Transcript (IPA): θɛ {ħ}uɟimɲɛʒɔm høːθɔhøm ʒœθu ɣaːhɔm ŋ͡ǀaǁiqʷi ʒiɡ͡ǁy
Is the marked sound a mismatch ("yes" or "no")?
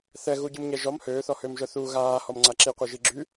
yes